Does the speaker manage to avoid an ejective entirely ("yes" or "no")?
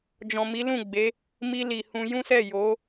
yes